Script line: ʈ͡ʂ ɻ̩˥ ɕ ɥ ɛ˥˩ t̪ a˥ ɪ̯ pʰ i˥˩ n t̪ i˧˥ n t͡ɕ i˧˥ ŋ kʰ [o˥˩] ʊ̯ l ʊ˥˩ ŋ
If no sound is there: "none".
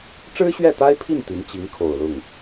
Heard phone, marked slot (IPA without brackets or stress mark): o˨˩